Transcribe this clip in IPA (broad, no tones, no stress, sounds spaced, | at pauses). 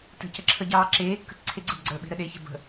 t ə̤ c ə ǁʰ ə ɟ ɑː ǁ eː kː ə̤ t ǀʰ e ɡ͡ǀ ə̤ b ɡ͡ǀ əː ɓ e̤ ɾ ə ɗ e ç e̤ b ə̤